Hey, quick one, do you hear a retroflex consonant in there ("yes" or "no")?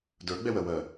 no